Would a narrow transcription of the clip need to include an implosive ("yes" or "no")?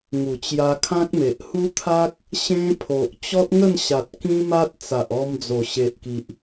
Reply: no